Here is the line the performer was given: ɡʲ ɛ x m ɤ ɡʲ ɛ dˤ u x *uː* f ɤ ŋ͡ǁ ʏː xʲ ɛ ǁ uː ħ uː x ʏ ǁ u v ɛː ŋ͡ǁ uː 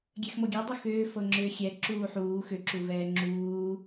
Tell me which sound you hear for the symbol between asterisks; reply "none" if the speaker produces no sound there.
ʏː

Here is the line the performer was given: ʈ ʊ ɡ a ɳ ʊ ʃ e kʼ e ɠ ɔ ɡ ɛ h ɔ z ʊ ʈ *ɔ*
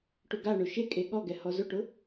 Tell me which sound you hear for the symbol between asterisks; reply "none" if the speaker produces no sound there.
ʊ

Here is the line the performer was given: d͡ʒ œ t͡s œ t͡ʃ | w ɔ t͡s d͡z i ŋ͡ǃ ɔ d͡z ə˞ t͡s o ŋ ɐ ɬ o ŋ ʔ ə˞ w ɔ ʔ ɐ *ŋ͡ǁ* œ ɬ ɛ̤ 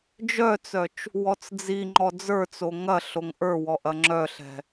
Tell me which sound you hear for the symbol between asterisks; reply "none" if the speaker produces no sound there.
ŋ͡ǁ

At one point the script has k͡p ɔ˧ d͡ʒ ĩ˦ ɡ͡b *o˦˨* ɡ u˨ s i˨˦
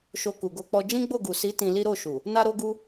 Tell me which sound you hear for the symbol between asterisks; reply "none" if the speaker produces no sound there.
o˦˨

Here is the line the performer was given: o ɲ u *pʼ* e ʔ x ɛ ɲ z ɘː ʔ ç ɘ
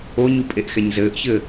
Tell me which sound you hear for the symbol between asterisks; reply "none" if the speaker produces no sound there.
pʼ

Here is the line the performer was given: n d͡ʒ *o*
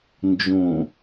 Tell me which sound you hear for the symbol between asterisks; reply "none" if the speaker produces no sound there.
õ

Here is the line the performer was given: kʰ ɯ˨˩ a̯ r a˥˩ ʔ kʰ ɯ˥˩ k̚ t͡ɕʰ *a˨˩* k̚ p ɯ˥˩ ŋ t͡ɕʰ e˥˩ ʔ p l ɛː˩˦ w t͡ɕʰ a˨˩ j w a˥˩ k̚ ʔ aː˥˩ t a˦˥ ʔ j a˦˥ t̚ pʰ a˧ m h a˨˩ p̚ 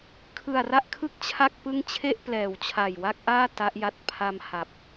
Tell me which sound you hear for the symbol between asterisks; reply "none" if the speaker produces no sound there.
a˥˩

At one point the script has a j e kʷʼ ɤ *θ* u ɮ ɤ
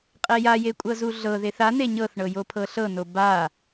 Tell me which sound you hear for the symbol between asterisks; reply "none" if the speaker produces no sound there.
z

